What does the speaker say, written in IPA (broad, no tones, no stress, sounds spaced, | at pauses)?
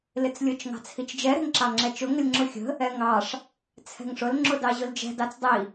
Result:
l ɪ t͡s lʲ ʊ t͡ʃ ŋ ɑ̤ t͡sʰ i t͡ʃ d͡ʒ ɛ ɾ ɛ̤ ŋ ǁ ɑ ŋ͡ǁ ɛ t͡ʃ ʊ ŋ ə lʲ ŋ͡ǁ ʊ xʲ ə̤ | ɛ ŋ ɑ ʂ | t͡sʰ ɛ̤ ŋ ʂ ʊ l ŋ͡ǁ ʊ d ɑ ʑ ʊ l d͡ʒ ɛ̤ d ɑ t͡s dˤ i